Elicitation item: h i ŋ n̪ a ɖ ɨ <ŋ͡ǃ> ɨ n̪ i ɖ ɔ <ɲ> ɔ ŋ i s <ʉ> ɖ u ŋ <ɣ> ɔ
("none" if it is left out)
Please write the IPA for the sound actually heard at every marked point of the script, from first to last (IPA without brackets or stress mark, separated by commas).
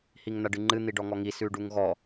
ŋ͡ǃ, ŋ, ʉ, ɣ